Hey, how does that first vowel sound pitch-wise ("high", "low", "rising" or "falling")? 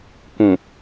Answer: low